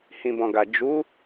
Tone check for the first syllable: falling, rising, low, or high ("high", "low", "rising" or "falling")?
low